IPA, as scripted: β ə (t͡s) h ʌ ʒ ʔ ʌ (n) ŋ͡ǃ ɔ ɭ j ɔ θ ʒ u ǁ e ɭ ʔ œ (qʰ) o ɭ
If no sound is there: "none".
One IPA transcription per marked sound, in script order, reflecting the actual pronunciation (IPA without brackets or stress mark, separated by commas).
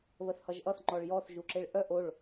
θ, θ, ʔ